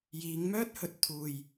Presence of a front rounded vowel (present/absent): present